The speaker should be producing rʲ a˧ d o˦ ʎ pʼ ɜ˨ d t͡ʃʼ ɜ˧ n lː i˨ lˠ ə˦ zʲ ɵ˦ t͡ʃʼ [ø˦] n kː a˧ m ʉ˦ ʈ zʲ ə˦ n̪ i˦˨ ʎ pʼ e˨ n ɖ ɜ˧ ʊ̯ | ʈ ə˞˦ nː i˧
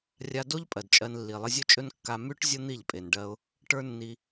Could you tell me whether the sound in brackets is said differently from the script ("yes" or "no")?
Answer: yes